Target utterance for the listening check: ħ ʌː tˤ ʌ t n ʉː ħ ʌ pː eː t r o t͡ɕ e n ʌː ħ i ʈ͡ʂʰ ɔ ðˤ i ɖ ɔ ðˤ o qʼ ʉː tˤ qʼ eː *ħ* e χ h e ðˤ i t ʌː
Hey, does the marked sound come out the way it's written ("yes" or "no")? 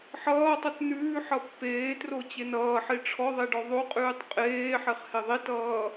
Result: yes